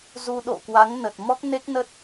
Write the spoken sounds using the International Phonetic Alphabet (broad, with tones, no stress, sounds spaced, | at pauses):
z u˧ ɗ o̰˧˨ k w a˨˦ ŋ n ə˨˩ t̚ m ɔ˦˥ k̚ n e˦˥ k̚ n ə˦˥ t̚